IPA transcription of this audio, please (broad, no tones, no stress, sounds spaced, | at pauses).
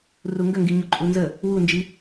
r u ŋ ɡ ə ŋ ɡ i ɲ o ǃʼ u n z ə | w u n d͡ʒ i